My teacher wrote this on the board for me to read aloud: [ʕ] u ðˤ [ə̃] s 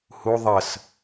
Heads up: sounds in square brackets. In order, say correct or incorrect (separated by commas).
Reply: incorrect, incorrect